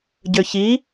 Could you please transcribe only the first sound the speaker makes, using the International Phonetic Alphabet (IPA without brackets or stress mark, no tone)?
ɟ